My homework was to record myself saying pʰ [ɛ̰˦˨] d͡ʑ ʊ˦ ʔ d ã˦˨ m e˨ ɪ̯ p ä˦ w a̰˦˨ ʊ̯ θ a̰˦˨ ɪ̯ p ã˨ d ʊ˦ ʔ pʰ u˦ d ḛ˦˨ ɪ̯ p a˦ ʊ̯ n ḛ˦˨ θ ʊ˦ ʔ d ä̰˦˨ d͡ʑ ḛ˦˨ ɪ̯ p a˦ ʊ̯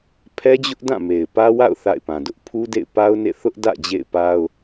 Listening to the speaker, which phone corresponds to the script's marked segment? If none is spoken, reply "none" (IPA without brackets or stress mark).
ɛ˦